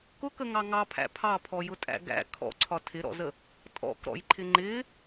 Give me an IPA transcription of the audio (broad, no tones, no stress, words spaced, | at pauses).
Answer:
kʊkəŋɑ ŋɑpʰæ̰ pʰɑpʰɔjʊtʼæ̰ ɡæ̰ kʰɔ̰ǀʰɒ tʰɪɾɔ̰zə | tʼɔ̰kɾɔ̰jǃʰɪ ŋ͡ǃɪ